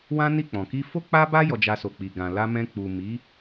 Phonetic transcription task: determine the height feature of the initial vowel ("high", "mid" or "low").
low